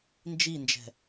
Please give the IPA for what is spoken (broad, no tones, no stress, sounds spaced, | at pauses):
n d͡ʒ i n d͡ʒ ɛ̤